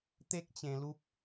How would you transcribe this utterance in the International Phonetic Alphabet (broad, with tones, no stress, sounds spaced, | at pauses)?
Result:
t̪ e˦ k̚ t͡ɕ ẽ˧ l u˦ p̚